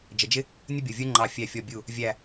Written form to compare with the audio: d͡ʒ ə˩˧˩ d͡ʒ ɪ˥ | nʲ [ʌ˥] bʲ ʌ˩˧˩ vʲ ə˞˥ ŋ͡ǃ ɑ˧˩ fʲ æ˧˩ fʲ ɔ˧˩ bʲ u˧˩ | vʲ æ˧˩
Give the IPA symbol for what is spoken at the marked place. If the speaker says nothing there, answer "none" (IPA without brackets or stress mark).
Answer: ʌ˥